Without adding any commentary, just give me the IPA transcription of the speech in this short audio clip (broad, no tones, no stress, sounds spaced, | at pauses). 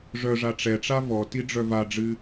ʐ œ ʐ a ʈ͡ʂ ɛ ʈ͡ʂ a v ɔ t i ɖ͡ʐ œ v a ɖ͡ʐ ɨ